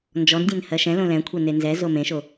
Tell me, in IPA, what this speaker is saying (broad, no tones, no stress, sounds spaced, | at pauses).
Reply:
n d͡ʒ ɔ n dʲ ẽ n h ɜ ʃ ɛ̃ l õ l ɛ̃ kʷʰ ɛ n e n z ɛ z o m ẽ ʃ o